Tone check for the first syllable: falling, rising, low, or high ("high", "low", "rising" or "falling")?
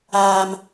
high